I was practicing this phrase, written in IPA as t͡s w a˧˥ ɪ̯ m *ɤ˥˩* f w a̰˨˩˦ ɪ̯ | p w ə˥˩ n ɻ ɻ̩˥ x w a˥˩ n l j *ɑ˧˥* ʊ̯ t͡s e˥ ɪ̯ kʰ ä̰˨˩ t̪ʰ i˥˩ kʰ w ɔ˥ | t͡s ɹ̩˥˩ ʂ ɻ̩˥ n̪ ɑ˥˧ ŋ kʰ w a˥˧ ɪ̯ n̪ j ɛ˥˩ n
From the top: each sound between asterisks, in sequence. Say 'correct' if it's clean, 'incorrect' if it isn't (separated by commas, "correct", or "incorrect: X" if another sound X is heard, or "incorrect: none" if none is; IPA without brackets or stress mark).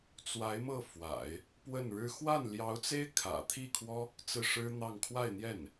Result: correct, correct